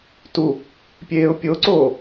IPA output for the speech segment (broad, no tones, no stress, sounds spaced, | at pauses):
t u | pʲ eː ʊ̯ pʲ o ǀ oː